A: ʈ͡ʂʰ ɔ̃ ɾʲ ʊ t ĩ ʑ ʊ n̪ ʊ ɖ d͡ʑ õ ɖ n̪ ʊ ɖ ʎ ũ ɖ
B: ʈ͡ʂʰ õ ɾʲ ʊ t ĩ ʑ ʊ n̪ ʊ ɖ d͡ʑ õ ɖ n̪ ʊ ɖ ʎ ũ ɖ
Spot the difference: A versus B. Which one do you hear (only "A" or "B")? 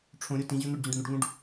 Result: B